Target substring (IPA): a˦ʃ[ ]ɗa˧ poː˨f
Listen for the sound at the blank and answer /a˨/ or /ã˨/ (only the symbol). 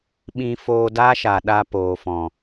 a˨